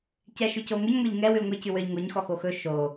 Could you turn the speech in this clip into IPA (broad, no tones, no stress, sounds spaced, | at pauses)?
c ɛ ʃ ʉ c o ŋ ɵ ɲ ŋʷ e ʎ ŋ ɛ w ʉ l ŋʷ e c ʉ w ə˞ ʎ ŋ o ɲ x ɔ x o x ɵ ʃ o